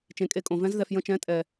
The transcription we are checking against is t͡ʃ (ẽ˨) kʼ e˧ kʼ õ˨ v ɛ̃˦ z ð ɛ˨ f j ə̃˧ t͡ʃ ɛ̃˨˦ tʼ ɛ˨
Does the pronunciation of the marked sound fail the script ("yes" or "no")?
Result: no